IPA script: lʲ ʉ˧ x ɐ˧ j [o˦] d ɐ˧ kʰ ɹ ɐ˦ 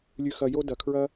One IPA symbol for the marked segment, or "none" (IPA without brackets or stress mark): o˦